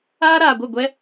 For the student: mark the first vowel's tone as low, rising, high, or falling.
high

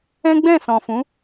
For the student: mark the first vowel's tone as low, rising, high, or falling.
high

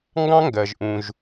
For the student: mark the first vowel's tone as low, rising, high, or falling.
high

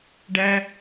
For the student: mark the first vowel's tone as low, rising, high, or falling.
low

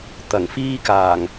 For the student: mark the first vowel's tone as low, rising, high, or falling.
low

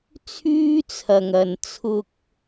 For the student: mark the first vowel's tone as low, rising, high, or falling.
high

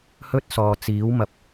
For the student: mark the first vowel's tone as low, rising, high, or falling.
high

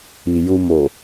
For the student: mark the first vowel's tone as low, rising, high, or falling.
low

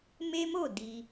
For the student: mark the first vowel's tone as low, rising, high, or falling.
high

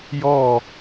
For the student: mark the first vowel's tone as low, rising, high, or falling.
falling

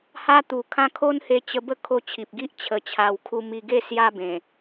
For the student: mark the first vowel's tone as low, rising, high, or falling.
high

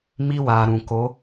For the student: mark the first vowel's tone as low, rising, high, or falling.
high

